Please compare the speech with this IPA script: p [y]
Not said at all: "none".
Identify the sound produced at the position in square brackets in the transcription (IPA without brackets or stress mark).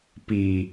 i